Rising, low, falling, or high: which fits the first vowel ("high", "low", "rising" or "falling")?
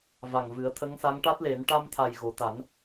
low